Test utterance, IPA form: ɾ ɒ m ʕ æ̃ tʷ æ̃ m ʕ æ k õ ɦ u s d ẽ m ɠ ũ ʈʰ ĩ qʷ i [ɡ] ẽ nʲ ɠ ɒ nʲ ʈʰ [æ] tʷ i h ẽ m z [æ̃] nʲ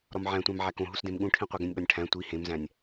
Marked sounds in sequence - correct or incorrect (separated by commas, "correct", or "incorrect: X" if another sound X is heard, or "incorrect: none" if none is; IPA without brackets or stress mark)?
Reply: correct, incorrect: æ̃, correct